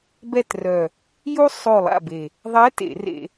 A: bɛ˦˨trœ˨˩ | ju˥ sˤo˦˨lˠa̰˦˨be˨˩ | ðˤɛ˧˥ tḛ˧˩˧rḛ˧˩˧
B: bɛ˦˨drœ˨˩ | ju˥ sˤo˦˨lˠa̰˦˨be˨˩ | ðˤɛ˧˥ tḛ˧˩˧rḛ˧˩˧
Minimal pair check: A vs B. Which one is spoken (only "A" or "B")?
A